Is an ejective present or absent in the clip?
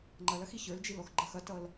absent